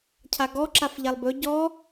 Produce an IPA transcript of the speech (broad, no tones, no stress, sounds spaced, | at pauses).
cʰ a ɡ ɔ ǁ a f ʎ a lˠ b ɵ ɟ ɔ